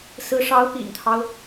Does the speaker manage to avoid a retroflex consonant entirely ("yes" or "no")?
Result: no